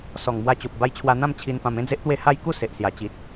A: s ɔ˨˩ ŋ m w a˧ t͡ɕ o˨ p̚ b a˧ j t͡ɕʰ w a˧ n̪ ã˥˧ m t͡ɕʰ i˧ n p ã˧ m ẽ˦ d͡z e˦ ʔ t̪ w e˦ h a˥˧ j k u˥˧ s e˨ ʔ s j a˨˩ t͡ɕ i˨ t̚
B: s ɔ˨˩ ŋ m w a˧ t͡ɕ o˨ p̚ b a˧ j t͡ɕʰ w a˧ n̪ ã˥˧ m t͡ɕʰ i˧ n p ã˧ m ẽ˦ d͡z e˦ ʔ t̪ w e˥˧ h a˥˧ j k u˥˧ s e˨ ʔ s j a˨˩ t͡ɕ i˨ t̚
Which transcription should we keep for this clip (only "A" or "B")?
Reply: B